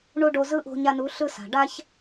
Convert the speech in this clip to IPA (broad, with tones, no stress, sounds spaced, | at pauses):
ɳ u˧ ɖ o˧ z ɯ˦ ʔ o̤˧ ɲ a˧ n u˨˦ ɬ ɯ˧ s a̤˨ ɖ a˧ ç